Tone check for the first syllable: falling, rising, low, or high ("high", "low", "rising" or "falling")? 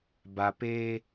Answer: low